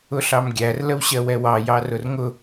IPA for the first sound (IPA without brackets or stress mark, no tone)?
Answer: ʊ